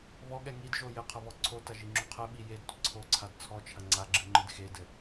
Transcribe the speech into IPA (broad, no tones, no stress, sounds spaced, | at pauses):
β ɔ ɠ ɛ ŋ i d ʒ o j ɘ qʰ ɐ β ɔ ǀʰ o t ɐ ʒ i ŋ͡ǁ u qʰ ɘ ɓ i j e d tʷ ɘ ǀʰ o ǀʰ a d t͡sʰ ɔ t͡ʃʰ ɐ ŋ͡ǀ a ɡ͡ǁ ɨ ŋ͡ǃ ɨ d x e d ɘ